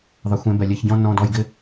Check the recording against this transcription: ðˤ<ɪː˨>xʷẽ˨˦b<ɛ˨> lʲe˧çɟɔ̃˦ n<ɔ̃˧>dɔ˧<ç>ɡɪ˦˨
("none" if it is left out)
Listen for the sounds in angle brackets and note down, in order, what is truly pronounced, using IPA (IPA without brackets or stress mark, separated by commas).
ɪ˨, ɛ˨, ɔ̃˧, j